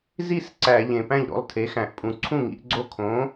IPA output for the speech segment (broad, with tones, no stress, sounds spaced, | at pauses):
z i˥˧ s ǀ æ˧˩˧ ʎ ẽ˨˩ p æ̃˥˩ ʎ ɾ o̰˥˩ lˠ tʰ e˩˥ x æ̃˨˩ ʔ pʼ ũ˨˩ ǀʰ ũ˥˩ ŋ ḭ˩˥ ʔ ɡ͡ǀ o˥˩ kʰ õ˩˥